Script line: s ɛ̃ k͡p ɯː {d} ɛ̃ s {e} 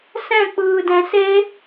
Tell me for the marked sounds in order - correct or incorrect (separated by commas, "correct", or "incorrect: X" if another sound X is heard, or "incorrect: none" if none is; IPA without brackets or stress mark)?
correct, correct